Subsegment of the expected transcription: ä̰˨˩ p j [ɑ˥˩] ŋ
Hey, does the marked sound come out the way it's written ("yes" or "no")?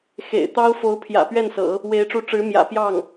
yes